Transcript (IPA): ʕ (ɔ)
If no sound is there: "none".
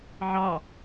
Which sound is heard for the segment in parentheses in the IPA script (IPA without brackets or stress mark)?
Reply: ɑ